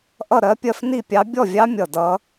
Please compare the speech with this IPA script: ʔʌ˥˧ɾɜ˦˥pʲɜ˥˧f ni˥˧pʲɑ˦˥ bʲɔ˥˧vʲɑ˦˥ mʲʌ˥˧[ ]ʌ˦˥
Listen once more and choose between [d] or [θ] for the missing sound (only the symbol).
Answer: d